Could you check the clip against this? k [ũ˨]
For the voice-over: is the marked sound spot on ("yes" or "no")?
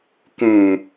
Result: yes